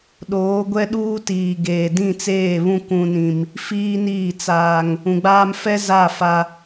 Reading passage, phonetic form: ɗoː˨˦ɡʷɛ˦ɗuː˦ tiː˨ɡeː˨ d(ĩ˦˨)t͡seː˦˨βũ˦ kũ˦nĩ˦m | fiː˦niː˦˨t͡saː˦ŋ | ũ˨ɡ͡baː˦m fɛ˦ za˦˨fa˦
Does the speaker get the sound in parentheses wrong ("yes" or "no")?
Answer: no